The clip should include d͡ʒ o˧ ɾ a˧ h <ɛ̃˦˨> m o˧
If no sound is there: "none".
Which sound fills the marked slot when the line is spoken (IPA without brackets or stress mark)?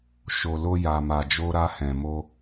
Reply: ɛ̃˨